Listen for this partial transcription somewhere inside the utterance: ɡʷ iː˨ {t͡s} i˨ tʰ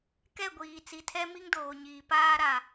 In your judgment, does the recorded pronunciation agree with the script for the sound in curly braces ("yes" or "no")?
yes